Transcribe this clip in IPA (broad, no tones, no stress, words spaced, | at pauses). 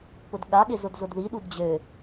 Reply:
pʊdɠa ɠɪzʊdzʊdði ɗudd͡ʑø